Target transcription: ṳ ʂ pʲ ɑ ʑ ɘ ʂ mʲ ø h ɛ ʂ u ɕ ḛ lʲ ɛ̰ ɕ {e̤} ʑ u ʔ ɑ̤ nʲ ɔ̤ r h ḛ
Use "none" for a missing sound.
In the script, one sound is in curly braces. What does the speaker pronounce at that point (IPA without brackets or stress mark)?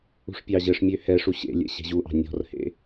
e̤